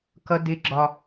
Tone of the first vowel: high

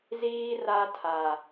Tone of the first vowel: high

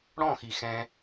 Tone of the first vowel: falling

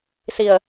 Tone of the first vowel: low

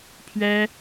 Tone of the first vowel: high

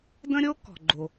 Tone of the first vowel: high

